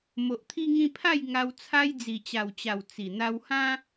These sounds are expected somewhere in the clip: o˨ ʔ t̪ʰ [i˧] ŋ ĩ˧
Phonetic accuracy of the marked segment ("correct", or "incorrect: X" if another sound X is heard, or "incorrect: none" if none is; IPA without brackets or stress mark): correct